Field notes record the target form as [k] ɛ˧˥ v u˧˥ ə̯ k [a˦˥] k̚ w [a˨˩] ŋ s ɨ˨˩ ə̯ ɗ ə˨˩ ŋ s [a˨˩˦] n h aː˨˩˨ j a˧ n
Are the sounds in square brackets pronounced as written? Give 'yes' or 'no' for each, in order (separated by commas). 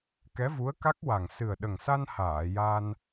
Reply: yes, yes, yes, no